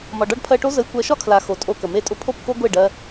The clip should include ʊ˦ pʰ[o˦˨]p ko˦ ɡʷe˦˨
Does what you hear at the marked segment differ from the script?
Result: no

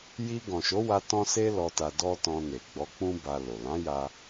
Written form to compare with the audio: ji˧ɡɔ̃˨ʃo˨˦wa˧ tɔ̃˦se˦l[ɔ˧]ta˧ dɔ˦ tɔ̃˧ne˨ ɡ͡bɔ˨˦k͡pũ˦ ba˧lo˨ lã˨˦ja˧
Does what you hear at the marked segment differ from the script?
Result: no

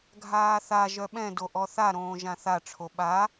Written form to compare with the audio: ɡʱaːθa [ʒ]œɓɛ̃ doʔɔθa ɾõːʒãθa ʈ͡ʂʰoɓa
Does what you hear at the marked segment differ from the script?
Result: no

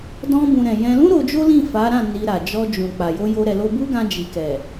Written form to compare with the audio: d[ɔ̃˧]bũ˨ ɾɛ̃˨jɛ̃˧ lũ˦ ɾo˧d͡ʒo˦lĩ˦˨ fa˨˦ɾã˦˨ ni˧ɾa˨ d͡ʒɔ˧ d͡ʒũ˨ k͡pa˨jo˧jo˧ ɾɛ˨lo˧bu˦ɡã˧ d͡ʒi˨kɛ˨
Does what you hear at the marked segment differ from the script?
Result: no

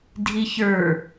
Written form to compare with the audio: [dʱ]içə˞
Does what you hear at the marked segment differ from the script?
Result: no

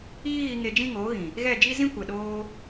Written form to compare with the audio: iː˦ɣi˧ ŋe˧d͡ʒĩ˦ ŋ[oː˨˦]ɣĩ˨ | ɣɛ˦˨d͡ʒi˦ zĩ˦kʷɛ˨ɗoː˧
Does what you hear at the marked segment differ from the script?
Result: no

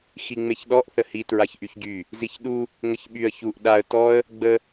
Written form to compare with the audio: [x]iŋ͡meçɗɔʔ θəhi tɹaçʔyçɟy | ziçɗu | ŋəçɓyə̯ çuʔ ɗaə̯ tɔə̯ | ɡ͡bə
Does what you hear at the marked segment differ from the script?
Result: no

